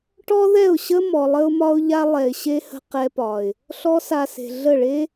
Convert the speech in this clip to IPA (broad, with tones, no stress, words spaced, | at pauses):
ʈɔ˦ðɛ˦˨ʊ̯ɕə˦ mɔ˧lˠə˦ʊ̯mɒ˦ʊ̯ʎa˦ lˠɛ˨ɪ̯ɕe˧hə̤˧ qɛ˧pɒ˨ɪ̯ | ɬɔ˦sa˧se̤˨ ɮə˦˨ɭe˦